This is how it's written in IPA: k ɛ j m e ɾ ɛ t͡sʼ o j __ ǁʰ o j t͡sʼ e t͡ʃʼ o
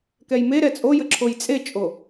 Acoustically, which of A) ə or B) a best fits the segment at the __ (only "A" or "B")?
A